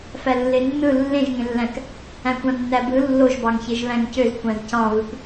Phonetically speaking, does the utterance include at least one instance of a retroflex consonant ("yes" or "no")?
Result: no